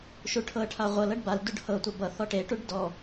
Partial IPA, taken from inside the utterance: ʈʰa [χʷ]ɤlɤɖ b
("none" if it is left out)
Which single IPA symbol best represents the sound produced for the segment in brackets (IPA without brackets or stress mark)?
ʁʷ